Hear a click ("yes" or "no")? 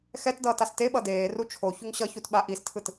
no